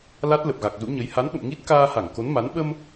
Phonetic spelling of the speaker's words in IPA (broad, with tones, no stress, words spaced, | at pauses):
la˦˥t̚ lə˨˩p̚ɣa˨˩k̚zṵ˧˥ɲə˨˦j ha˨˦nɓə̰˧˨m ŋi˦˥t̚ kaː˧ha˧˩ŋ ko˨˦nma˨˦n ɓə˧m